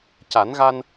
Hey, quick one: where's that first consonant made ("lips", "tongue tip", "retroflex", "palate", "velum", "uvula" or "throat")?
palate